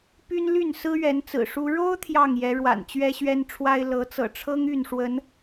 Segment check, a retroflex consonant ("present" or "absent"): present